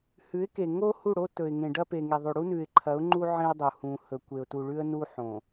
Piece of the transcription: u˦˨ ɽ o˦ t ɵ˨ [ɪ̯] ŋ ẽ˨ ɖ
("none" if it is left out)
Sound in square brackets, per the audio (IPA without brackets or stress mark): ɪ̯